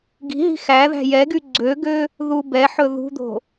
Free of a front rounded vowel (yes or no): no